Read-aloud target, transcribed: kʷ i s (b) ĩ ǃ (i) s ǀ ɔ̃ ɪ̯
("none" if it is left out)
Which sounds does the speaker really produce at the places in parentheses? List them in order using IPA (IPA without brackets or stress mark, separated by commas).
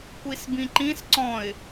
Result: b, ĩ